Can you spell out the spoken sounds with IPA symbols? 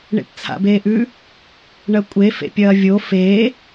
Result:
ɳ ḛ p t͡sʰ a̰ b eː ʔ ʉ | ɳ ɐ kʷʼ e f ḛ pʲ ɐː vʲ o f eː

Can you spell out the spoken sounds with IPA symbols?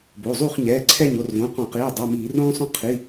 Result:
b o˩˧˩ zˤ u˥˨ χ ɲ ɛː˩˧˩ ǀʰ ɛ˥˨ ɲ o˥˨ r v õ˩˧˩ q ɔ̃˧˩˧ q iː˩˧˩ dˤ u˩˧˩ m iː˧˩˧ r õː˥ sˤ õ˥ qʰ i˩˧˩

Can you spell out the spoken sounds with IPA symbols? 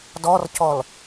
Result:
d ɔ r c ɔ l

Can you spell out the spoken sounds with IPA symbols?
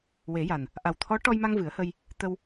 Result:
w e˨˩˦ j a˨˩ n | ʔ a˨˩ w t̪ʰ ɔ˧˥ ʈ ɔ˧ j m a˧ ŋ v ɨ˨˩˦ ə̯ h ə˧ j | t̪ ə˧ w

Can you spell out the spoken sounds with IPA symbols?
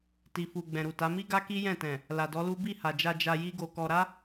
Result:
t i˨ f u˨ ɡ͡b ɛ̃˨ ɾ u˨ t a˨˦ m i˦ ɡ a˦ k i˦ j ɛ̃˦˨ t ɛ̃˨ | l a˨ d ɔ˨˦ l u˦ b i˦˨ h a˨ d͡ʒ a˧ d͡ʒ a˧ j i˦ ɡ o˧ k ɔ˧ ɾ a˦

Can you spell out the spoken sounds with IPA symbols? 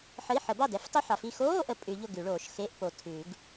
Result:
ħ ə˧˥˧ i̯ ħ ə˨˩˦ b ɑ˥˩ d ɛ˨˩˦ f tˤ o˥ ħ ɑ˨ f i˥˩ x oː˧˥˧ ʔ ə˨ pʼ ʉ˨˩˦ ʎ ʊ˥˩ ɡ ʉ˨˩˦ ɭ oː˨ ʃ x e˧˥˧ ʔ p o˨ tʰ ʉ˨˩˦ ɡ

